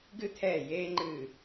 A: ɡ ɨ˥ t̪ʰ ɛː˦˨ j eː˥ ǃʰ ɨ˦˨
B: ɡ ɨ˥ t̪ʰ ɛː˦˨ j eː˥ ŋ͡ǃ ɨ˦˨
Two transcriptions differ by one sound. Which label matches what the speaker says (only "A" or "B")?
B